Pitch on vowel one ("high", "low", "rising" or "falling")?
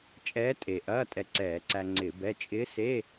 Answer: rising